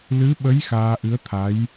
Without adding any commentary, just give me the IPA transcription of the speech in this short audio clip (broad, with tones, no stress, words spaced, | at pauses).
lɨ˧˥ɓə˧˥j xaː˧ʔɨ˧˥ə̯t̪ʰa˧˥j